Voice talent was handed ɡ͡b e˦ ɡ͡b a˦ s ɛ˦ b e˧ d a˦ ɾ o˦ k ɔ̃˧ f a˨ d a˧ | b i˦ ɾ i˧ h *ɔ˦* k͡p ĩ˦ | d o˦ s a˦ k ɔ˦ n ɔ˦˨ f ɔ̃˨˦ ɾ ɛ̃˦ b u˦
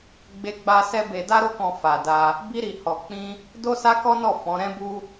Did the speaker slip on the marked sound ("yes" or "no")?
yes